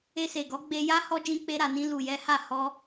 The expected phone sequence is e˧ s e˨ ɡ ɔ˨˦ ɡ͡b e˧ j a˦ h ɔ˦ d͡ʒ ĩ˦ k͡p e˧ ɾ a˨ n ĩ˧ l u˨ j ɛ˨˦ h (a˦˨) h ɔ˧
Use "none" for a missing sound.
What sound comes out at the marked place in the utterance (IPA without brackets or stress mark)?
a˦˨